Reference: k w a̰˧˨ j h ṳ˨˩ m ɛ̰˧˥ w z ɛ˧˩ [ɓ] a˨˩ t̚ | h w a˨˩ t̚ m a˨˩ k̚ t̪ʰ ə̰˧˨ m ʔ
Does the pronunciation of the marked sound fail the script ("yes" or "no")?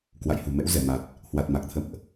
yes